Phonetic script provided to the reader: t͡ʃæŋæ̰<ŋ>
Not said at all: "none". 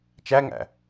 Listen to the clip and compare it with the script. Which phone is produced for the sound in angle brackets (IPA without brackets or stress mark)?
none